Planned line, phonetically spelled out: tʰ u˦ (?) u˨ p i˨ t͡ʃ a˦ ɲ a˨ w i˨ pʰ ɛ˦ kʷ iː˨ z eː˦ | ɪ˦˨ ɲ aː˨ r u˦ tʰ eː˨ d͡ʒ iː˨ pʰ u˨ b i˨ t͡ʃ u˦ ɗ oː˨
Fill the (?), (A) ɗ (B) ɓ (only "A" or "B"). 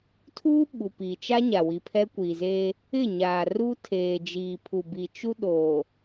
B